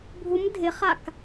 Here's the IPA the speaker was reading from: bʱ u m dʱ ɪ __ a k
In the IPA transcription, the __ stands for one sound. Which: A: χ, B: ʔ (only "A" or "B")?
A